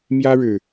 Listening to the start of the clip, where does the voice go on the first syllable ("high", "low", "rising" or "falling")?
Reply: high